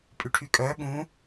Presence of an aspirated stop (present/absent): present